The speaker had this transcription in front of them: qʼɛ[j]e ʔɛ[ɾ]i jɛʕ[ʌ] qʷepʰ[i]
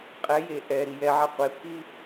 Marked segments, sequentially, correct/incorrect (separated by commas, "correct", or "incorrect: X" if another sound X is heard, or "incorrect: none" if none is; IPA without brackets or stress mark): correct, correct, incorrect: a, correct